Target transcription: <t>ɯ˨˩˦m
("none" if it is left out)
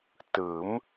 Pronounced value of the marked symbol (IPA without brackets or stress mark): t